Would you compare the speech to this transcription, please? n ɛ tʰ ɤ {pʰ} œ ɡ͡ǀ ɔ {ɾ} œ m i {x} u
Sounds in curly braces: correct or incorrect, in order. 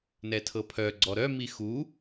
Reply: correct, correct, correct

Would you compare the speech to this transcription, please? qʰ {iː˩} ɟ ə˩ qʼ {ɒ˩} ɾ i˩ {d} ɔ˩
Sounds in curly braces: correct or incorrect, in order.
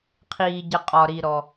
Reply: correct, correct, incorrect: ɾ

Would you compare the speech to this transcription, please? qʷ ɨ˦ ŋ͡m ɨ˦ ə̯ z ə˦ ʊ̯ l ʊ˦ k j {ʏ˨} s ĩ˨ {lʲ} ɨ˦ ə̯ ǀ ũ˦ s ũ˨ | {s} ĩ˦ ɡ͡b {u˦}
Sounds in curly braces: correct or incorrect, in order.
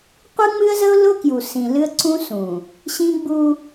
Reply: incorrect: u˨, incorrect: l, incorrect: ɕ, correct

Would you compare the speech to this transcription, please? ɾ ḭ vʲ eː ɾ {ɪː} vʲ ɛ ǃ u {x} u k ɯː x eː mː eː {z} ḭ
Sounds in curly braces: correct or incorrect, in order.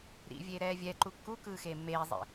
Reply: incorrect: ɛː, incorrect: kː, incorrect: zˤ

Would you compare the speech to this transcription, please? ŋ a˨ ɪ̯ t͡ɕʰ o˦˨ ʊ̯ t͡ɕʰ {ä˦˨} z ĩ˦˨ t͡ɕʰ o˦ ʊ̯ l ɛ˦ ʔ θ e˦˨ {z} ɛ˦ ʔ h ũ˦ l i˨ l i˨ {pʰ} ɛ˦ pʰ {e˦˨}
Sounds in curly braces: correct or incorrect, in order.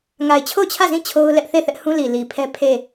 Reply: correct, incorrect: θ, correct, correct

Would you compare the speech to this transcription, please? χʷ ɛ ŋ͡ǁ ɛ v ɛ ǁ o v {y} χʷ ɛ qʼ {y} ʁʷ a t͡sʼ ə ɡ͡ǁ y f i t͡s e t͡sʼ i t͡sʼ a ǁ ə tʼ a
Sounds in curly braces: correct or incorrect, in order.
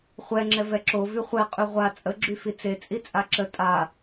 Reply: correct, correct

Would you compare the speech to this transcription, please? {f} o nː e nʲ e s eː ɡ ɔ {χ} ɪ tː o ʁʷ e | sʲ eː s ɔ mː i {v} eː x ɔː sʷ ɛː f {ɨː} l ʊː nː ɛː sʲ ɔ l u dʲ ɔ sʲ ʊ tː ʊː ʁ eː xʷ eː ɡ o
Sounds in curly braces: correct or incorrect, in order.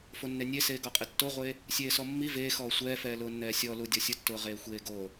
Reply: correct, incorrect: qʼ, correct, incorrect: ɛː

